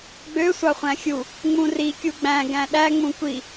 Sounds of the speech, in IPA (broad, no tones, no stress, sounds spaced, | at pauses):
ɡ͡b ø sʷ ɑ χʷ æ̃ xʲ u | ŋ͡m ũ r i kʲ u ɡ͡b æ̃ ɡ æ̃ ɗ æ ŋ͡m ũ kʷ i